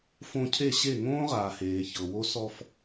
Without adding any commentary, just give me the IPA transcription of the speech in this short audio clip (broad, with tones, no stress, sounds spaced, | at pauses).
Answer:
f õ˧ cʰ e˦˨ ɕ e˦˨ ŋ õː˦ ʁ aː˨ h eː˨ ç ɤ˨ w o˦ s ɔ˧ f